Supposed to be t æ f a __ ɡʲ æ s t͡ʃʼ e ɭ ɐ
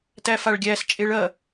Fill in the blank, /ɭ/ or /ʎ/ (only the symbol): ɭ